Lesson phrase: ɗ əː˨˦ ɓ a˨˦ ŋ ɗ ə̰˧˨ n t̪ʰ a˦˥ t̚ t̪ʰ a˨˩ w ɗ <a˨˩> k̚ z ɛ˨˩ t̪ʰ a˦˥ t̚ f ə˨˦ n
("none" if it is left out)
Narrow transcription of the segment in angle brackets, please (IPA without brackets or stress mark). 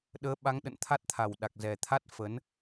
a˨˩